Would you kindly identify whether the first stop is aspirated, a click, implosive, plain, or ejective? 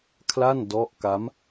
aspirated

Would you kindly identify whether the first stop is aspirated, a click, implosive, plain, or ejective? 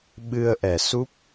implosive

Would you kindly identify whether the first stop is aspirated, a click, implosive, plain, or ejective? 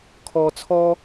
aspirated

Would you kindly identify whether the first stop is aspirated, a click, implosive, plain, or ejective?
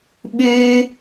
implosive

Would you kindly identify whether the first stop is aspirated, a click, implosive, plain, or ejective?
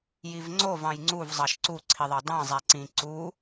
click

